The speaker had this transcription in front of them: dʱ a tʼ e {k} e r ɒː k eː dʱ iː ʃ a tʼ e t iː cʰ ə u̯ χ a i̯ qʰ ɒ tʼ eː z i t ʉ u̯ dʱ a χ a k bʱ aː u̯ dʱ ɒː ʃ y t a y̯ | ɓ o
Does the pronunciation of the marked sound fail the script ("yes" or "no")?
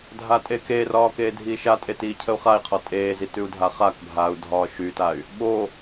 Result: no